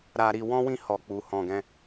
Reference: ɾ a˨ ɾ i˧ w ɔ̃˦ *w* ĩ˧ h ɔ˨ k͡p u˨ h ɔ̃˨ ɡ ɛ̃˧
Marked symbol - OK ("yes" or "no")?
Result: yes